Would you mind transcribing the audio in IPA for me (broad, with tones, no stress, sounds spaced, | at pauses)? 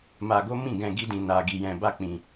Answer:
m a˧ ɡ o˦ m ĩ˦˨ ɡ ɛ̃˧ ɡ i˦ d ĩ˧ n a˧ ɡ i˧ j ɛ̃˧ b a˦ k͡p ĩ˧